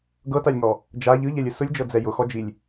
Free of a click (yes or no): yes